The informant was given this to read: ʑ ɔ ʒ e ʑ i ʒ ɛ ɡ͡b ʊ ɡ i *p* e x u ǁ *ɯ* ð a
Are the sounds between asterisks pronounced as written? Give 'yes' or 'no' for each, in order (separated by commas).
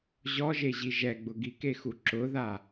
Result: no, no